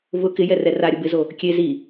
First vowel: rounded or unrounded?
rounded